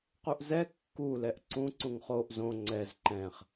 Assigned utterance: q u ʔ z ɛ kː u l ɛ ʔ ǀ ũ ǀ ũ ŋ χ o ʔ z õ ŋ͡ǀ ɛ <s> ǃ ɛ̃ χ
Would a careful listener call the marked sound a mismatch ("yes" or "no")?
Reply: yes